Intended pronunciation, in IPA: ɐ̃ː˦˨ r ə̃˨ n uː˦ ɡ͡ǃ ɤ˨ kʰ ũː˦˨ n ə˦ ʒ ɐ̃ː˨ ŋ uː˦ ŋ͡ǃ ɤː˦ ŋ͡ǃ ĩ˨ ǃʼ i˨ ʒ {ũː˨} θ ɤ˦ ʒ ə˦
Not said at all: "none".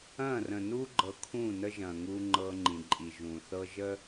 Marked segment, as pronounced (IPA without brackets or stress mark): ũː˨